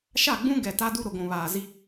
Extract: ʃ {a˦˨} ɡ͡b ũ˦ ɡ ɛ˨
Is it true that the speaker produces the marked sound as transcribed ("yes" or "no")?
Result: yes